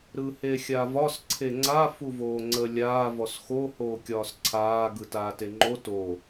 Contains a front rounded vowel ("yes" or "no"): no